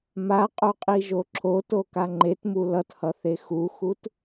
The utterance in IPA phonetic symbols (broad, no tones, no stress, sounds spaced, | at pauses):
m a qʼ o qʼ i ʒ o ǁʰ o t o k a ŋ͡ǃ e t m u l ʌ t h ʌ θ e x u x u t